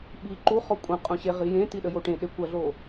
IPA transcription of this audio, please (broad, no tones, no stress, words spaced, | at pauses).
ɓi ǃuχɔ kʷʼɐ̃ qʼũɕeʁijẽ tiɗəjoʈẽ ɗekʷɐɮo